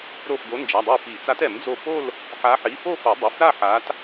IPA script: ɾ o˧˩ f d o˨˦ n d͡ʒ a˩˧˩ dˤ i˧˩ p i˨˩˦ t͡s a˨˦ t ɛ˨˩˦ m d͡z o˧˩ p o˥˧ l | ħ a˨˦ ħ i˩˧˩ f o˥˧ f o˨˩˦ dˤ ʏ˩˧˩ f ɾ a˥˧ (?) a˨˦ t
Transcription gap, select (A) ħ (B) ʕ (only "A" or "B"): A